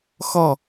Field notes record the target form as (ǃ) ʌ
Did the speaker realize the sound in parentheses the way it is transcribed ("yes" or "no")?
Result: no